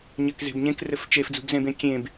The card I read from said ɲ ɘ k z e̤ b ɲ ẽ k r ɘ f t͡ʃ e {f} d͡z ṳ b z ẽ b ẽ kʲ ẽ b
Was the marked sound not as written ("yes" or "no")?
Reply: no